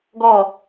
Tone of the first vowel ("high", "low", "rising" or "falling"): falling